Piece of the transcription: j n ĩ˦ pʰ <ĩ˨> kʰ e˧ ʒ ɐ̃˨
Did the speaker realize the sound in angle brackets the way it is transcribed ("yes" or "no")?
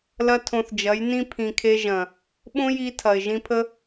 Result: yes